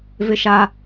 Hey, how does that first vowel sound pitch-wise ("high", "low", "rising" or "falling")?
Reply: high